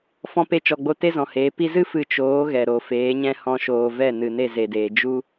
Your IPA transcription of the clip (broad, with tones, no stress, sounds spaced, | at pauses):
f ɔ̃˧ p e˧ t͡ʃ ɔ˨ ɡ͡b o˧ t e˦ z ɔ̃˨ h eː˨˦ p i˧ z ɨ˦ f ɨ˧ t͡ʃ oː˨˦ ɣ ɛ˨ ɾ o˨ f eː˨˦ ɲ ɛ̃˦ h ɔ̃˧ ʃ oː˨ v ɛ˦˨ n ɨ˨ n e˦˨ z e˨ d eː˨ d͡ʒ u˦